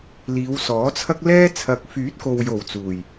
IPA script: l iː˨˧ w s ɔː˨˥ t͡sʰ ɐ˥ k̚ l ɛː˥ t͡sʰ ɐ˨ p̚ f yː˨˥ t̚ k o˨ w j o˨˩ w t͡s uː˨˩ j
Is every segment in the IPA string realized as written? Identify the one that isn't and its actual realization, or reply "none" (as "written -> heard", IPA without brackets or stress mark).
p̚ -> k̚